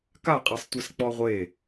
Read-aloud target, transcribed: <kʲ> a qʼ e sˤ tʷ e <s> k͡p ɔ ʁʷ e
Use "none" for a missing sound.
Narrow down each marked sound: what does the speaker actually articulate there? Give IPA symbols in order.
k, s

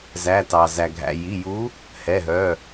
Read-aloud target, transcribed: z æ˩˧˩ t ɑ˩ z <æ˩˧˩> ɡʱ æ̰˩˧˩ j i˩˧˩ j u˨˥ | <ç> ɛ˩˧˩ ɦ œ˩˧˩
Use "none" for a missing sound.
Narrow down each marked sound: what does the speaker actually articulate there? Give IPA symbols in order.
æ˩, h

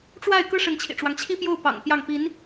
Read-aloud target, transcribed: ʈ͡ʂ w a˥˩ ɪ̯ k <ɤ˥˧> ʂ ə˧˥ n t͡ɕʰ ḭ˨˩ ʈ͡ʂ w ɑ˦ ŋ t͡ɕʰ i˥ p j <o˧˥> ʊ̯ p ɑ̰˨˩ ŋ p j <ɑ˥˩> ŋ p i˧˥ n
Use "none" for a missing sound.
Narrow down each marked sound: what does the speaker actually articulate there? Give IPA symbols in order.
ɤ˥, o˥˩, ɑ˥˩

